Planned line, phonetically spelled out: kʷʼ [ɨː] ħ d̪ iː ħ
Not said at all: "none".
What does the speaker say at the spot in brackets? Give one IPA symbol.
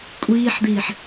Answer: iː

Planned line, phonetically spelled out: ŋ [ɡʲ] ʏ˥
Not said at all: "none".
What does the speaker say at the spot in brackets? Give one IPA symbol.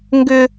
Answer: ɡ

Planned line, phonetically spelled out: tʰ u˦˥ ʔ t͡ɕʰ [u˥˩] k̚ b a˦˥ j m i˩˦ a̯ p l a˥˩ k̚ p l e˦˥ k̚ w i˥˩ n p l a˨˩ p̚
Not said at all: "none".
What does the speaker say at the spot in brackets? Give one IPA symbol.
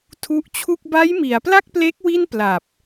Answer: u˥˩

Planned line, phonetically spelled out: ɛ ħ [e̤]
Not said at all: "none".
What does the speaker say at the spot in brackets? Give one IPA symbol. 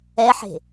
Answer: e̤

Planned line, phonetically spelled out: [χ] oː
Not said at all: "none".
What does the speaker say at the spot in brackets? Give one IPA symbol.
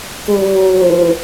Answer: k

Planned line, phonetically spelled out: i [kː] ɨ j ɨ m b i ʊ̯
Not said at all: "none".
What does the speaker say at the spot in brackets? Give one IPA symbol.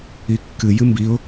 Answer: kː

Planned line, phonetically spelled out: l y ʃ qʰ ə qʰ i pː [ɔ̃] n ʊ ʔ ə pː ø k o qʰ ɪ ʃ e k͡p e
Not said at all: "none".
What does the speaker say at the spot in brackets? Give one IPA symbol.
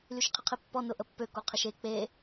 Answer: ɔ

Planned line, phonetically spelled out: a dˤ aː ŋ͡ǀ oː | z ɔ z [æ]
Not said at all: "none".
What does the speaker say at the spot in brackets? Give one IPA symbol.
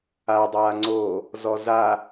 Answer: a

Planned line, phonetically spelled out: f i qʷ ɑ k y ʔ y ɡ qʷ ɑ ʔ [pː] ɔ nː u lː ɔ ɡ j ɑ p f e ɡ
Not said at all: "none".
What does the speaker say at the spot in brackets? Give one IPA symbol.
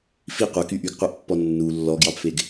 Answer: pː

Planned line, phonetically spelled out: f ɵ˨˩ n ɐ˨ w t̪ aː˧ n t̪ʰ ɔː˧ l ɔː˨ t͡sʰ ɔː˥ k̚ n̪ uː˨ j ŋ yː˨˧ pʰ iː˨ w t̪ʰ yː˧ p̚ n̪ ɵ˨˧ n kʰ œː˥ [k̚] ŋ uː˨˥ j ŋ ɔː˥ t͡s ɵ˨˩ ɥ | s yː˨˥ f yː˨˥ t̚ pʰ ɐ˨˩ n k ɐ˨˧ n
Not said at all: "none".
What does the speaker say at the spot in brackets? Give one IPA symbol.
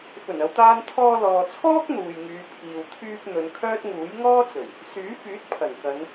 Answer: t̚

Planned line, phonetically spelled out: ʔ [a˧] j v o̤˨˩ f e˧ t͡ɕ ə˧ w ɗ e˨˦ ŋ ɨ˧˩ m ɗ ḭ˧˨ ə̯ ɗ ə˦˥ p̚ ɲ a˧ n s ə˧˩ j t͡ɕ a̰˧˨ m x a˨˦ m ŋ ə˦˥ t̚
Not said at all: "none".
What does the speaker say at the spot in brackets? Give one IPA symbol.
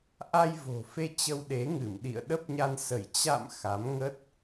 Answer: a˧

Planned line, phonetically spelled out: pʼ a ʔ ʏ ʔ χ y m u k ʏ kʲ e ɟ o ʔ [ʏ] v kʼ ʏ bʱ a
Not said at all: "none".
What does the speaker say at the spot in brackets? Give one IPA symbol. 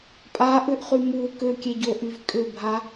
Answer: y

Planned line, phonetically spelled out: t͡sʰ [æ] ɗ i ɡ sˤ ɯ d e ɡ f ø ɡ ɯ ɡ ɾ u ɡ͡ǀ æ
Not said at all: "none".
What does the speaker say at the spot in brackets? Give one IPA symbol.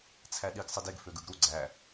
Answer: æ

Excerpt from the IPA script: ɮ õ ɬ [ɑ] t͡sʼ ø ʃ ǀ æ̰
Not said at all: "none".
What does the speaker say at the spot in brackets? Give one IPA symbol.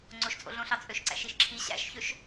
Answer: ɑ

